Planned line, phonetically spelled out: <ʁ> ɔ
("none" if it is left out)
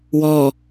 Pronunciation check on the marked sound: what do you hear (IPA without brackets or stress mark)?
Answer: w